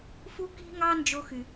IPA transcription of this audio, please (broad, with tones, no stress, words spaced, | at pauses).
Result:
fu˦ki̤˦ŋɑ˦ nd͡ʒo˥xy˨